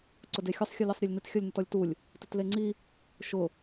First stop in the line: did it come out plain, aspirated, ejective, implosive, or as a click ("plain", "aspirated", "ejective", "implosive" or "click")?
click